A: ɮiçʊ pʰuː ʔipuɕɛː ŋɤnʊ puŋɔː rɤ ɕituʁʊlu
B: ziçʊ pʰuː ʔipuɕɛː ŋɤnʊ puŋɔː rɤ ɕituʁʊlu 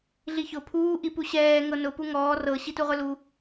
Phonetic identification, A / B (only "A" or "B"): A